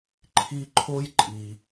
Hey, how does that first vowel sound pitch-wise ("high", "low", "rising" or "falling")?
high